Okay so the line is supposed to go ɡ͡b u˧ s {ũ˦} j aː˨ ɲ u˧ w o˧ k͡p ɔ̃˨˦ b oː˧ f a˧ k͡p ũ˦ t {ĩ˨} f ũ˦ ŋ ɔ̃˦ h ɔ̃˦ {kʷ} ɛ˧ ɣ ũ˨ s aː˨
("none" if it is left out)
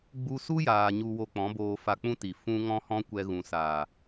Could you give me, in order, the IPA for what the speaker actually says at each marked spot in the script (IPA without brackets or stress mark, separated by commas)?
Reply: u˦, i˨, kʷ